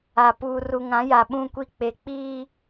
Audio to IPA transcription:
a˨ puː˨ru˨ŋã˨˦ ja˨ɓũ˦˨kʷi˦ k͡pe˨k͡piː˦

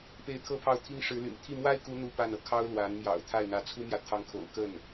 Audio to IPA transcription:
pe˥˩ɪ̯ t̪ʰɤ˥pʰɑ˥˩ʊ̯t̪ʰi˥ŋ ʂɻ̩˧˥ly̰˨˩n t̪ʰi˥˩mwa˥ɪ̯ku˧˥ n̪u˥pa˥˩nɤ˩ kʰɑ˥ʊ̯lwa˧˥n mjɑ̰˨˩ʊ̯t̪ʰa˥˩ɪ̯n̪ä˧˥ t͡sʰu˥mjä˨ t̪ʰɑ˧˥ŋkʰo̰˨˩ʊ̯ kə˥˩n

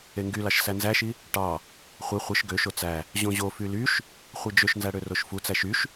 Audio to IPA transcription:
eŋɡylɑʃ sænzæʃi | ʈɑ | χʷe χʷɯʃ ɡøʃo t͡sæ | ʑõʑofy lyʃ | χʷid͡ʒøʃnzæ ɽøroʃfut͡sæʃ yʃ

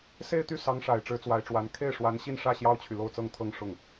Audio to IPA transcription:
se˥˧ɪ̯t̪y˥˩sɑ˧˥ŋʂa˨˩ɪ̯ ʈ͡ʂɻ̩˧˥t͡swa˧˥ɪ̯ʈ͡ʂwa˧˥n kʰe˥˩ɪ̯ʂwa˧˥nɕi˥˧nʂä˥˩ ɕjɑ˥ʊ̯t͡ɕʰy˨ lo˥˧ʊ̯t͡sɤ˥˧ŋt̪ʰɤ˥˧ŋ ʂʊ˥˩ŋ

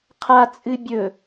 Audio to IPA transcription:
qʰa t͡sʼɨbʲɵ

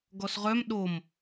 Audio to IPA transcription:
ɡɔsʁœm ɗom

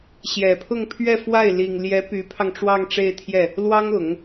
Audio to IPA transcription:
ɕjɛ˨˩pʰʊ˥˧ŋpʰɥɛ˥˧ fwa˥˩ɪ̯ li˨˩ŋljɛ˧˥ py˧˥pʰɑ˧ŋʈ͡ʂwɑ˥˧ŋ ʈ͡ʂe˥˧ɪ̯t̪ʰjɛ˥˩ | lwɑ˥ŋʊ˨˩˦ŋ

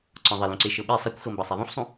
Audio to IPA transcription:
ǀɔ̃ðˤɪ lũǀeʃɤɓe sˤɛkʷxɤ mbɤsˤaðˤũħsˤũ

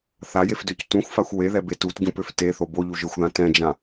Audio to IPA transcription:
θajefdøc tũxʷfaxʷ weðɛbe tutɟũpøf teθo boʎuʒə˞xʷðã tɛ̃d͡ʒã

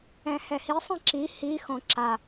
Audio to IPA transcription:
ɛ̃hɛhi sˤĩǁi hixõ ǁa

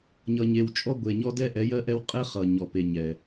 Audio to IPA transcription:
ɲʌ˨ɲe˨wt͡ʃʼɔ˦ ɡʷe˨ɲɔ˦dɛ˦ ʔɛ˨˦jɜ˦ ʔɛ˦w qʼɛ˦ χʌ˨ɲɔ˨pe˨ ɲɛ˨

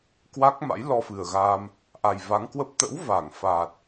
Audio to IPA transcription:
kwa˦˥k̚ma̰˧˥j lɔ˧fɨ˨˩ə̯ ɣa˧m | ʔa˨˩jva˨˦ŋkwə˦˥p̚ t̪ə̰˧˥w va˧˩ŋ fa˨˩t̚

